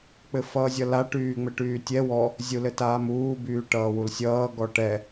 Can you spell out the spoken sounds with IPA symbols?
k͡pɘfʌːzʲʌla ʈyːŋ͡mɘʈyːtʲɛ wɔ | zʲulɘtaːmuː byːʈʌːwulsʲʌː ɡɔʈɛ

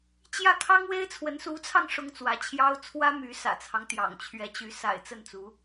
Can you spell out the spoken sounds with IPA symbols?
t͡ɕjä˥˩kʰɑ˥ŋwe˥ɪ̯t͡sʰwə˧˥n su˧˥t͡sʰɑ˧ŋ ʂʊ˥ŋt͡swä˧˥t͡ɕʰjɑ˥ʊ̯ t͡sʰwä˥my˧˥sä̰˨˩t͡sʰɑ˦ŋ t̪jɑ̰˨˩ŋt͡ɕʰɥɛ˧˥t͡ɕy˧˥ sa̰˨˩ɪ̯t͡sə˥˩nt͡su˧˥

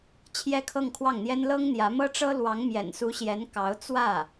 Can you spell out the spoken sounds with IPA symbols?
t͡ɕʰjɛ˥kʰɤ˥˧ŋkʰwɑ˥˩ŋn̪jɛ˥n lɤ˥ŋn̪jä˧˥mɤ˥ʈ͡ʂɤ˥ lwɑ˧˥ŋmjɛ̰˨˩nsu˧˥ɕjɛ˧˥n kɑ˧˥ʊ̯ t͡swä˥˩

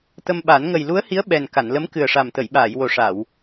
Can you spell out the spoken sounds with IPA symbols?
t̪ə˧mɓa˨˩˦n ŋə˨˩jlu˧˥ə̯hi˧˥ə̯ ɓɛ˨˩n ka˨˩˨nlə˧˥m kɨ˨˩ə̯ʂa˨˩m t̪ə˨˩˨jɓaː˨˩˨jwo˨˩ʂa˨˩˨w

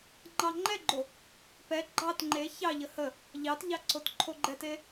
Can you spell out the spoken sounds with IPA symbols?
ŋ͡ǃɑŋ͡ǃɛɡ͡ǃo | pɛ ɡ͡ǃɑt ŋ͡ǃe çɑʎə hə | ʎɑtʎɑ ǀotǃʰoɡ͡ǃɛte

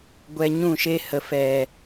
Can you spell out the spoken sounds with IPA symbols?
ɡʷɛ˧ɲũ˦˨ʃe˦ hə˨ fɛ˨

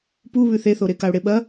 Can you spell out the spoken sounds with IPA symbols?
puβʉ θeθoɾe kaʊ̯ɽeɓɐ

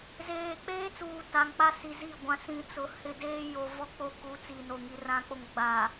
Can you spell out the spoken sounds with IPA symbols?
zeː˨k͡peː˦t͡suː˨ ta˨ŋk͡pa˦ si˨zi˦˨ɡʷã˨˦ sĩ˨t͡sʊ˨ hɪ˦˨deː˦ jo˨vɔ˦k͡po˦ ku˨˦ t͡si˨no˨ŋi˨ rã˨k͡po˨ŋ ɡ͡ba˨

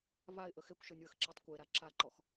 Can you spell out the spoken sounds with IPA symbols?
vaɪ̯ʔə xekʷʃɯnʲwəxǁetˤ kʷeɾa ǁaǃɔx

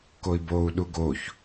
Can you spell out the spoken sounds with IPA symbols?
koi̯bou̯ɗu ɡoç

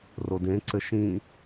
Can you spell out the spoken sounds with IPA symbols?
rodẽǀɘ ʃĩ

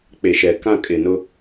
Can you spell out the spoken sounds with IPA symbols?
k͡pe˨ʃɛ˨ kã˦˨ kʼɪ˨nʊ˦

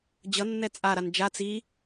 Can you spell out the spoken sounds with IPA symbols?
d͡ʑʌnːɛ t͡sʼaɾan d͡ʒa t͡si

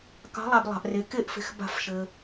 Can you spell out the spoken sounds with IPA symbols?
kɑ̤˧˥lˠa˧b lˠɑ̤˧ʔre˧ ke˥˨ʔfe̤˧x ba̤˥˨fʃɘ˧

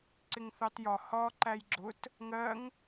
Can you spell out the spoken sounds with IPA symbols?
ǀɪŋθɑtjɒ hɒ ǃæjɡ͡ǁʊt | ŋɜŋ

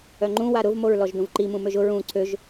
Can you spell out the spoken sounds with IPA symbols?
œŋ͡ǃũ waɾʊv moɹlɔʒdũvǃi mũmøʒʊ ɹũ ǀʰøʒ

